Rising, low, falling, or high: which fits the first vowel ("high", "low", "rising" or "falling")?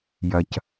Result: low